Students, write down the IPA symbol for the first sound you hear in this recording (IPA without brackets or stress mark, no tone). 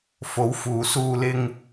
f